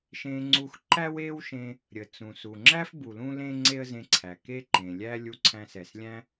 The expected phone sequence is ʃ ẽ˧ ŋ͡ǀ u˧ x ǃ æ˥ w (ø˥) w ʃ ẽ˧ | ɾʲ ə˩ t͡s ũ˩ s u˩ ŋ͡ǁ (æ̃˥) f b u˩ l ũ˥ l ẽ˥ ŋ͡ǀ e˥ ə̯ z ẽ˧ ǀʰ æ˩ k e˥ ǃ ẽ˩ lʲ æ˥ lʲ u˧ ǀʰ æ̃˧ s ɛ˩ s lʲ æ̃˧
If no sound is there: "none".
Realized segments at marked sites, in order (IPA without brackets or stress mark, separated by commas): e˥, æ˥